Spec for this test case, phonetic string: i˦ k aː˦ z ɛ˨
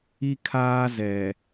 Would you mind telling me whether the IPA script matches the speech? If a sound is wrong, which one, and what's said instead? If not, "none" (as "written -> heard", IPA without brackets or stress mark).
k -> kʰ